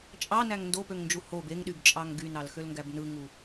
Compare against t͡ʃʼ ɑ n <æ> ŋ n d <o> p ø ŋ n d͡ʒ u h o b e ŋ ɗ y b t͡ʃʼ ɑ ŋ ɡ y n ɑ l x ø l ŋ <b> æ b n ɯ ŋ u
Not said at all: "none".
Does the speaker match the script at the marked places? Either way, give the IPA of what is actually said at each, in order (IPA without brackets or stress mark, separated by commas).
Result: æ, o, ɡ